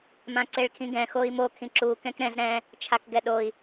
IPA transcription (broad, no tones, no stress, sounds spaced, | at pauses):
m ã ǀ e ɭ kʰ ĩ ɡ ɛ̃ x o i̯ m o kʰ ĩ ǁ u k ɛ̃ k ɾ ɛ̃ z ɾ ɛ̃ | t͡ʃʰ a k ɡ ɛ ɗ o i̯